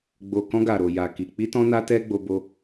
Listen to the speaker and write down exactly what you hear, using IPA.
ɡ͡b o˨ k ɔ̃˧ ɡ a˨ ɾ o˨ j a˨ k i˨ k͡p i˧ t ɔ̃˧ n a˧ t ɛ˧ ɡ͡b o˧ b o˧

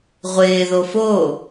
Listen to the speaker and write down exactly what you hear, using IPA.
ʁʷ ɪː ð o f o

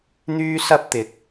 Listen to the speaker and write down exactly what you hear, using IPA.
n̪ yː˥ s ɐ˥ p̚ t̪ ɪ˨ k̚

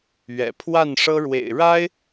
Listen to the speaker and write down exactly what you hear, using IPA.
ɥ ɛ̰˨˩ pʰ w a˥˨ n ʂ ɤ˦ ɻ w ḛ˨˩ ɪ̯ ɻ a˦ ɪ̯

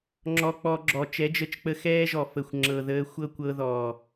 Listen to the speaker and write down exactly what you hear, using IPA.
ŋ͡ǁ ɔ˧ k͡p ɔ˧ ɡ͡ǁ ɔ˨ t͡ʃ ɛ˨˦ d͡ʒ ə˧ t͡ʃ k͡p ə˧ x ɛː˦ ʒ ɔ˨ f ə˨ xʷ ŋ͡ǁ ɤ˨ ð əː˧ xʷ ɤ˦ kʷ ɤ˧ ð ɔː˨

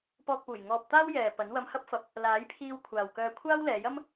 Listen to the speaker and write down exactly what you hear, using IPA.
p ɔː˨ k̚ p uː˨˩ j ŋ ɔː˨ p̚ t̪ aː˥ w j ɛː˨ p ɐ˨˥ n w ɐ˧ m h ɐ˥ p̚ f ɐ˧ p̚ | l aː˨˥ j pʰ iː˧ w kʷʰ aː˨ w k œː˧ kʷʰ aː˥ w l ɛː˨˧ j ɐ˥ m

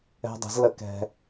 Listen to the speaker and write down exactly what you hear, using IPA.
ɛ̤˧ dˤ ə̤˨˩˦ z l ə˧ k ɛ̤˧

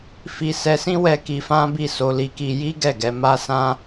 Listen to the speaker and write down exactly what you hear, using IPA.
f i˧ s ɛ˧ s ĩ˦ w ɛ˧ k i˧ f ã˦ b i˦˨ s o˧ l i˧ k i˧ j i˦ ɡ ɛ˦˨ ɡ ɛ˧ m a˦ s ã˦

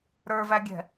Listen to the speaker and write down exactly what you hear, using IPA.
ɾ ə˞ v æ ɡʲ ɛ̤

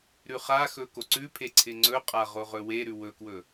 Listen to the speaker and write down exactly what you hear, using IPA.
ɾ ʉ χ a x ɵ k o ǀ ʉ pʰ e ǀʰ ɪ ŋ͡ǀ ɵ qʼ a ʁ o ʁ ɵ w e ɾ ʉ w ɵ k w ɵ

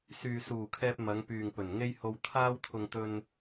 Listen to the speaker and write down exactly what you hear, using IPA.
s yː˨ s uː˨˩ kʰ ɛː˧ p̚ m ɐ˨˧ ŋ p yː˨ ŋ p ɵ˨˩ n ŋ e˥ j h o˧ w t̪ʰ aː˥ w t̪ʰ ʊ˧ ŋ t̪ ɵ˧ n

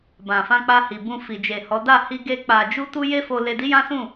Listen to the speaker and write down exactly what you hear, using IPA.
b ã˨ f ã˧ k͡p a˧ h i˨ b ũ˧ f i˨ d͡ʒ e˨ h ɔ˨˦ d a˦˨ h i˧ ɡ e˦ k͡p a˧ d͡ʒ u˦ t u˦ j e˦ f o˧ l e˧ d i˦ j ã˦ s ũ˦˨

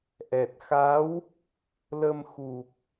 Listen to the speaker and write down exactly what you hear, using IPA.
ʔ ɛ˨˩ t̚ x a˧˥ w | l ə˧ m x u˨˩ p̚

